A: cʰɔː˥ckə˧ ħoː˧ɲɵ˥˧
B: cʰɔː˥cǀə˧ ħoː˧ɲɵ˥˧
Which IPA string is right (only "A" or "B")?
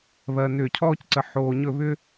B